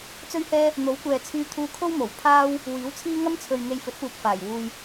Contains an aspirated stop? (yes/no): yes